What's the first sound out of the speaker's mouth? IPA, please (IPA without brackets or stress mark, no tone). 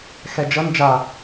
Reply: x